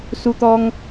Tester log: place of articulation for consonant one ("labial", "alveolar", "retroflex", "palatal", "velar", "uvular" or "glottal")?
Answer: alveolar